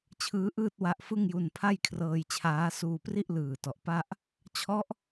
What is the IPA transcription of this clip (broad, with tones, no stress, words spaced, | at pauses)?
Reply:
t͡ɕʰɯː˦˥ʔɯː˥˩t̚wa˦˥ʔ fɯ˥˩ŋju˧n pʰa˥˩jkʰrɤː˧jt͡ɕʰaː˦˥ suː˧pri˥˩ʔlɯː˨˩ tɔ˨˩ʔpa˥˩ʔ | t͡ɕʰɔ˦˥ʔ